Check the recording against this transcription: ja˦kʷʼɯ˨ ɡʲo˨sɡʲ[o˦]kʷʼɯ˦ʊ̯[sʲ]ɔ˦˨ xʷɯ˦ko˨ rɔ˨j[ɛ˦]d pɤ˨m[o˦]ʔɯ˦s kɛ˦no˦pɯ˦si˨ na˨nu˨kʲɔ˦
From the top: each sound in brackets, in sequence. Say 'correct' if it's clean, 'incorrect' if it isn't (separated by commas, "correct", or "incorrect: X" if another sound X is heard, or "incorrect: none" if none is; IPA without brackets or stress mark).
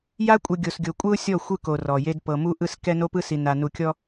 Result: incorrect: o˨, correct, incorrect: e˦, incorrect: u˦